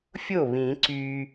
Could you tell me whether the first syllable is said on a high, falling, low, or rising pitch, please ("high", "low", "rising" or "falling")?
falling